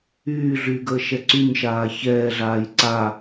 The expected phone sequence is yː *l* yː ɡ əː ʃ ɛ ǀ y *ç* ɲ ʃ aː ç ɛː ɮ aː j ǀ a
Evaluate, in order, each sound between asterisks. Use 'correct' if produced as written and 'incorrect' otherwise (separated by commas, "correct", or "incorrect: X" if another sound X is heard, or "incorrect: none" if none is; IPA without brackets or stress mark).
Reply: incorrect: ɮ, incorrect: none